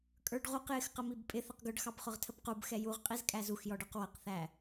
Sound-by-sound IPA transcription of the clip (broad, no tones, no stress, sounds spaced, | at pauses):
kʼ ə˞ ɖ ʁ u q j ɪ x q ə m i b pʼ ɪ θ ə q ɡ ʊ ɖ x ɑ b χ ʊ ʁ tʰ ə b q u b x ɛ j u ʁ qʼ i z kʼ æ z u x j ɔ ɖ ə˞ q w ʌ q θ æ